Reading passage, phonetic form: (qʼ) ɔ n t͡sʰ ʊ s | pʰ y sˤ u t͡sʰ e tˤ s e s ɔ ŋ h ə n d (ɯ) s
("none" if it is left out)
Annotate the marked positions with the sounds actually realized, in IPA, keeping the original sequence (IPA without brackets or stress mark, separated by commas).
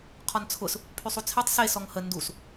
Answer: qʰ, u